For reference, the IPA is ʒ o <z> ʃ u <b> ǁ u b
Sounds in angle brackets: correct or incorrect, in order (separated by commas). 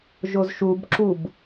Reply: correct, correct